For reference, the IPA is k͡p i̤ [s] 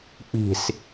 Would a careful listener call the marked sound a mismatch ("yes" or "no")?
no